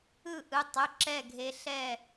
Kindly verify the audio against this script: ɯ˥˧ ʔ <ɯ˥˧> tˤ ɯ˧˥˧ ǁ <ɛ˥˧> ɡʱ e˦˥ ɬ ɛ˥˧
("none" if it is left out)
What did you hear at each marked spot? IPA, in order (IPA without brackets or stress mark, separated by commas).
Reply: ɯ˧˥˧, ɛ˥˧